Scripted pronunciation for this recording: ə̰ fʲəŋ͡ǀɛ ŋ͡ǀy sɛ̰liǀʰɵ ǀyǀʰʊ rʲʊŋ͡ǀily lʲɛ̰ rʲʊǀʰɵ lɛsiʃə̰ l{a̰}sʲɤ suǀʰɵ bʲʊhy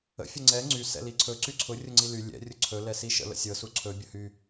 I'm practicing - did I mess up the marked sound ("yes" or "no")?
yes